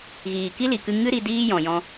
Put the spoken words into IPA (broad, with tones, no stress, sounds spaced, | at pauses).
ɣ iː˨ k i˦ l i˨ k ɨ˧ ŋ ɨ˦ ɾ i˧ d iː˦ j ɔ̃˨ j ɔ̃˧